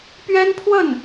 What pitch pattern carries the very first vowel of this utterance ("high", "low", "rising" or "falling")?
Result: high